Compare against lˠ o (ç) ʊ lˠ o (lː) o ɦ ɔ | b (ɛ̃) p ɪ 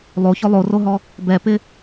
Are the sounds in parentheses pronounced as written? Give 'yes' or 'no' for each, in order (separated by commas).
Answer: yes, no, no